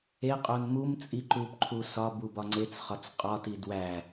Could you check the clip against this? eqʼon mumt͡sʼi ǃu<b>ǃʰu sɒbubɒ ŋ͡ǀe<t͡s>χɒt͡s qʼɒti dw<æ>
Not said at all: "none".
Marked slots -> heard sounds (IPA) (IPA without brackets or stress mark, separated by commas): p, t͡s, æ